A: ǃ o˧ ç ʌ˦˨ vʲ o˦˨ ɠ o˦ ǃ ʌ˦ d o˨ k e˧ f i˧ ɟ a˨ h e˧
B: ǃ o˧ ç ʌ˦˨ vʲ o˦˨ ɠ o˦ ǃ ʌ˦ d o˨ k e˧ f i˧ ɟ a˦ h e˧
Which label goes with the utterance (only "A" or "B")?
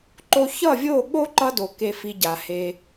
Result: A